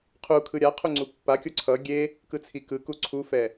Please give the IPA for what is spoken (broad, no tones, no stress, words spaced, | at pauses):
qʰu kʰɯɾʲaqʰu ŋ͡ǀupːakʲo ǀʰʌ ɡʲe | kɯt͡sʰikɯku ǀʰufɛ